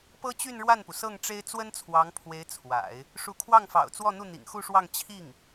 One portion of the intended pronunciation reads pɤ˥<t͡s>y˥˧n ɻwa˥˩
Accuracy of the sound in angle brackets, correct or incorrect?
incorrect